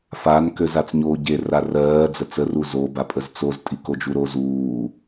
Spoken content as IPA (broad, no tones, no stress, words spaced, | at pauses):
fan køzat͡sɲoːɟe rarɜː d͡zət͡sə ruzo bapʼəzt͡soz tʼikod͡ʒuɾoz uː